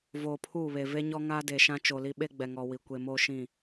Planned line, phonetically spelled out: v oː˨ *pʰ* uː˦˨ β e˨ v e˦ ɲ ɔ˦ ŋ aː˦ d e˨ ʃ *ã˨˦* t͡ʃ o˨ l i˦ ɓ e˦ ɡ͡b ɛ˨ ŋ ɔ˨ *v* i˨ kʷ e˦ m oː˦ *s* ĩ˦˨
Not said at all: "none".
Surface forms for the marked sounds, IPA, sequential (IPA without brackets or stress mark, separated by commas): pʰ, ã˦, w, ʃ